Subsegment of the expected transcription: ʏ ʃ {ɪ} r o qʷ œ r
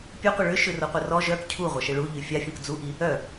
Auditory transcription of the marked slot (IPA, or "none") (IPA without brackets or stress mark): ʏ